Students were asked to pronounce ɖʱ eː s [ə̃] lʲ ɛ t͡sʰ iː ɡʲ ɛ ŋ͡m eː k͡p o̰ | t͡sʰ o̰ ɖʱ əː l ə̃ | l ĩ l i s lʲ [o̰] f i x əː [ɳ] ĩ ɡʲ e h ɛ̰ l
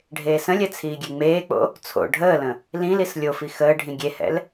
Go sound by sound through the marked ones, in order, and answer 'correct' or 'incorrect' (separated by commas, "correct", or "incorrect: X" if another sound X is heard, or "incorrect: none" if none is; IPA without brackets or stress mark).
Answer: correct, incorrect: o, incorrect: ɖʱ